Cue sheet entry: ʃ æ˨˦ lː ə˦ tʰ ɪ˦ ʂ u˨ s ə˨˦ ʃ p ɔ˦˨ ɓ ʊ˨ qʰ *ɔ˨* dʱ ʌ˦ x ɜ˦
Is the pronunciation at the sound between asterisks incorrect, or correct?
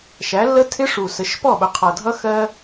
incorrect